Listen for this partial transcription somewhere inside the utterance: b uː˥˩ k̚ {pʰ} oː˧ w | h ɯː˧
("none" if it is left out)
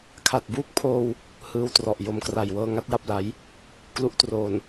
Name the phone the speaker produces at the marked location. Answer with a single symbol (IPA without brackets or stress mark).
pʰ